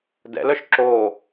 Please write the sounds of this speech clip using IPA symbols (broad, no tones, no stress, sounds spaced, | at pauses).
d ɛ̰ l œ ʃ ǁ oː